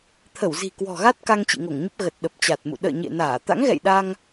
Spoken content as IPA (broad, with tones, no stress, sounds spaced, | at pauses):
t̪ʰ ə˧˩ w z i̤˨˩ k w ɔ̤˨˩ ɣ a˦˥ t̚ k a˧ ŋ t͡ɕ ḭ˧˨ ŋ o˧˩ ŋ ɲ ə˦˥ p̚ ɣ ə˨˩ t̚ ɗ ə˨˩ p̚ t͡ɕ a˨˩ t̚ m ṵ˧˨ ɗ ə̰ː˧˨ ɲ ḛ˧˨ n aː˧˩ t̪ a̰˧˥ ŋ ɣ ɛ̰˧˨ j ɗ a˧ ŋ